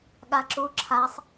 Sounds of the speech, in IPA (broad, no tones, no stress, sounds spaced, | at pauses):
ɠ a ǁ u ǁʰ a sˤ